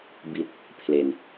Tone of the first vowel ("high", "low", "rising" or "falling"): low